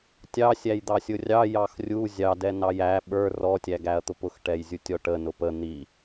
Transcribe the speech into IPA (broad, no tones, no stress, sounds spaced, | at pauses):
tʲ ɑ sʲ æ j d̪ ɑ sʲ ʊ rʲ ɑ j ɑ x rʲ u zʲ ɑ d ɛ n ɑ j æ ɓ ə˞ r ɔ tʲ æ ɡ æ ɐ̯ t̪ ʊ p ʊ x ʈ ɛ j zʲ u tʲ ɔ ʈ ə n ʊ p ə n̪ i